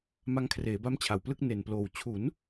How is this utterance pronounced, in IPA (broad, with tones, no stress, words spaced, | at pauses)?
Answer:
ma˧ŋkʰreː˩˦ba˦˥m t͡ɕʰa˨˩wplɯ˥˩k̚ ne˨˩nploː˨˩w t͡ɕʰu˩˦n